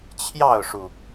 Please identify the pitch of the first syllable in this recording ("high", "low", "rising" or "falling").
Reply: falling